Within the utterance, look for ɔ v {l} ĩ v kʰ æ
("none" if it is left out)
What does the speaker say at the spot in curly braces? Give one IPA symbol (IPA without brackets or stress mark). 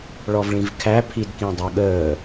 ɭ